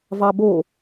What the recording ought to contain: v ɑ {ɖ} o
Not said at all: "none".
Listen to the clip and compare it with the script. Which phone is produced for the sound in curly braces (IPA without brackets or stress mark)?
b